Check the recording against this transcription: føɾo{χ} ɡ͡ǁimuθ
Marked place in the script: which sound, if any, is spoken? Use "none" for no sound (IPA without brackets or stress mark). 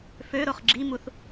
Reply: χ